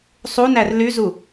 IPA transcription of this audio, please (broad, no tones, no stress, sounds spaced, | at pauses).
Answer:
sˤ u n æ r l y z u